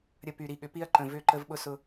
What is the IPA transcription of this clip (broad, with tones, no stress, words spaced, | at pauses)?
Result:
ɾʲə˨ py˨ɾi˨ɠʏ˨pi˦ɐ̯ ǃə̃˨vʏ˦˨ ǃə˦vɓʊ˦ sʊ˦